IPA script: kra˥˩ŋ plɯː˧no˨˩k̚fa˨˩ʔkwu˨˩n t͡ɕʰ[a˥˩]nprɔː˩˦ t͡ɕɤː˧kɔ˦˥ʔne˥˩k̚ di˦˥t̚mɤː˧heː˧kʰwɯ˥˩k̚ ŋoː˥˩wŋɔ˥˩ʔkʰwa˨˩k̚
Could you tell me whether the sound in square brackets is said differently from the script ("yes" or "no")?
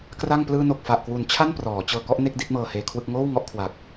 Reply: no